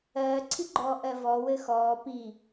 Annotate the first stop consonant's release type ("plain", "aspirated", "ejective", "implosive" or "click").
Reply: click